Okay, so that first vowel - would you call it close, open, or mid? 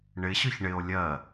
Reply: close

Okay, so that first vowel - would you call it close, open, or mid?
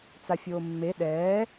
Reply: open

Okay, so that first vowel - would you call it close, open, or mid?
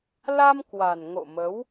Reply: open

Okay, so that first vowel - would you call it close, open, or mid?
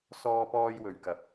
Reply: mid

